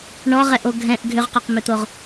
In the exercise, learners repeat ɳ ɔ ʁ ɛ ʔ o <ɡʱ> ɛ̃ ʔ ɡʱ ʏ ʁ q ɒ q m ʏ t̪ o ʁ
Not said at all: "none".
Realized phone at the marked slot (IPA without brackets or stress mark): ɡʱ